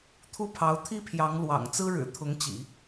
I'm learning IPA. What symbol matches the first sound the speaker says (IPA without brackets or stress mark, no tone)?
t̪ʰ